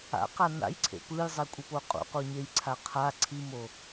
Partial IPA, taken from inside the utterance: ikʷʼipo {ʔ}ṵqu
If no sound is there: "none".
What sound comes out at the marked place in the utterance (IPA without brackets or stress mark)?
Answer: qʼ